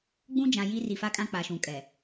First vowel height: high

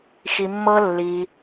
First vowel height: high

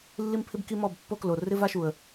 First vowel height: high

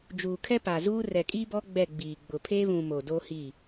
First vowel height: high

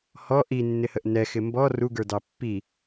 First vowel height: mid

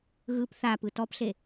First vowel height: high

